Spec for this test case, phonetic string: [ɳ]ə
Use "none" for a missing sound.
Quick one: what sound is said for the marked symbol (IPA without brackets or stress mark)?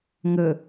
ŋ